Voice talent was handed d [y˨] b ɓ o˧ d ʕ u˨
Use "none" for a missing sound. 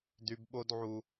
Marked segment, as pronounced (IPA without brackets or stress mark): y˨